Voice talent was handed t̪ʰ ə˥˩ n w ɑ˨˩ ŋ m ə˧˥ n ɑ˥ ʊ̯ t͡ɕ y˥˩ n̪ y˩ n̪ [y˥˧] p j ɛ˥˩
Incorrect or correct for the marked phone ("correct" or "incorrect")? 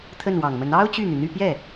correct